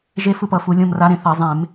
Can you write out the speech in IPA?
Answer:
ʒ e˦ f ɯ˦˨ p ʌ˩˧ f u˩˧ lʲ õ˦˨ m r a˨˥ ɾ ẽ˩˧ θ ʌ˧˩˧ zˤ ẽ˧˩˧ m

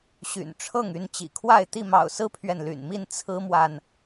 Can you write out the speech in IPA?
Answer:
ɕ y̰˨˩ n ʈ͡ʂʰ ɤ˥˨ ŋ y˥˨ n t͡ɕ ḭ˨˩ kʰ w a˥˨ ɪ̯ t̪ i˥˨ m ɑ̰˨˩ ʊ̯ s ɹ̩˦ pʰ ɥ ɛ˨ n l y̰˨˩ n m i˥˨ n t͡sʰ ɹ̩˦ m w a˨ n

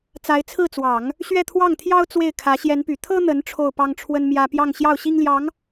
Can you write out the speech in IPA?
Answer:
t͡s a˧˥ ɪ̯ t͡sʰ ɹ̩˥˩ t͡s w ɑ˨˩˦ ŋ | ɕ ɥ ɛ˥˧ t̪ʰ w ɑ˥˩ ŋ t̪ʰ j ɑ˥ ʊ̯ t͡s w e˥˩ ɪ̯ kʰ ä˧˥ ɕ j ɛ˧˥ n p y˨˩ t̪ʰ ɤ˥ n̪ ə˧˥ n ʈ͡ʂʰ o˥˩ ʊ̯ p ɑ˥ ŋ ʈ͡ʂʰ w ə˥ n m j ä˥ p j ɑ˥˧ ŋ ɕ j ɑ˥˩ ʊ̯ ɕ i˥ ŋ l j ɑ˧˥ ŋ

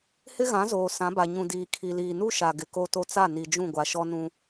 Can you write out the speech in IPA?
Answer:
h ɪ˦ ɣ ã˨˦ z oː˨ s ã˨˦ b a˨ ɲ ũ˨ d iː˨ kʰ i˨ l iː˨ n u˦ ʃ a˨ ɡ ɪ˨ k o˦ t o˦ t͡s a˦˨ n i˨ d͡ʒ ũ˦˨ ɡʷ a˨ ʃ ɔ˦ n ũ˦

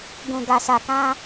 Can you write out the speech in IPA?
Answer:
ɡ ũ˨ ɡ a˨ s a˨ k ã˧

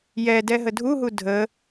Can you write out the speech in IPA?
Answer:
j ɛ d ɛ ɦ ə dʱ u ɦ u dʱ ə

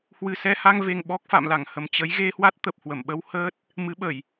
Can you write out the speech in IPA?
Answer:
h w ɨ˨˩ s ɛ˧ h a˧ ŋ v e˨˩ ŋ ɓ ɔ˦˥ k̚ f a̰˧˨ m l a˧˩ ŋ h ə˨˩ m t͡ɕ ə˨˦ j ɣ e˧ h w a˦˥ t̚ t̪ ə˨˩ p̚ h w ə˧˩ m ɓ ə˧ w h əː˦˥ t̚ | m ɨ˨˦ ɓ ə˧˩˨ j

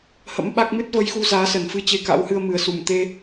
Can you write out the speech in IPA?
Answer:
h ə̰˧˥ m ɓ a˦˥ k̚ m ɨ˦˥ t̚ v ə˨˦ j x u˧ z aː˨˦ s ə˨˩ n f ɨ˧ t͡ɕ e˧ k a̰˧˥ w h ɨ˧ ə̯ m ɨ˨˩ ə̯ s u˧˩ m t̪ e˧

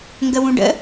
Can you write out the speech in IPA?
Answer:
ŋ ɡ ə w ũ ɖ ə̰

